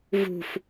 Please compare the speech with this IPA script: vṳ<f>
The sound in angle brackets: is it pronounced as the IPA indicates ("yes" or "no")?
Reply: yes